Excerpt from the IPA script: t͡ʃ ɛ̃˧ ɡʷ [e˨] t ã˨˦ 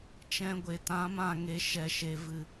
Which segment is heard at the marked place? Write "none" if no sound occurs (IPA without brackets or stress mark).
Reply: e˨